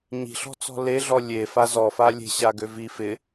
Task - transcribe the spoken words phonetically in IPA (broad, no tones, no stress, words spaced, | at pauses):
ɲi̤ɬɔ̤t͡sɔ̤ leɮɔ lʲe fazɔfa lʲe̤ ɕaɡøvi fɪ